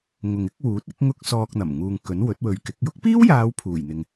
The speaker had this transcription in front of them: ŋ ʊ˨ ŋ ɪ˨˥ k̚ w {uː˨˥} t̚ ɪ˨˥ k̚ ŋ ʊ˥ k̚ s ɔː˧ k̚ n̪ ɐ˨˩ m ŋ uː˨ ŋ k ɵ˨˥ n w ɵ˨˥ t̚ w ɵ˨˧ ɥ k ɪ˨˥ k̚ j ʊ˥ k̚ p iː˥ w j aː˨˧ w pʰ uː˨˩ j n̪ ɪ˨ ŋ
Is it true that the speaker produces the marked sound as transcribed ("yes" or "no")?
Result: yes